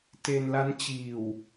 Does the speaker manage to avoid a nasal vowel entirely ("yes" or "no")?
yes